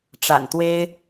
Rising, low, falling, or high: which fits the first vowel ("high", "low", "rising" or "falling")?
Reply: low